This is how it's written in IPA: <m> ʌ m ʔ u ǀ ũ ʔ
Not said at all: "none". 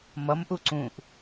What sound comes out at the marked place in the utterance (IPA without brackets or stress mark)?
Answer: m